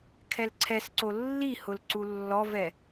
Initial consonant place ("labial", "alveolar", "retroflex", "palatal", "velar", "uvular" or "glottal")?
velar